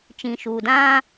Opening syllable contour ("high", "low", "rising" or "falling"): low